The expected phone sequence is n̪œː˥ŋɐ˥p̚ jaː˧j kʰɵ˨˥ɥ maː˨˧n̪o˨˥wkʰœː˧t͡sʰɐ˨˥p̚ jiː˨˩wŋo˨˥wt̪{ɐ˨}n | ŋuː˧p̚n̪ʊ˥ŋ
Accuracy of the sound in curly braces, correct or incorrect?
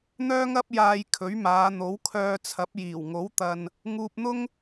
correct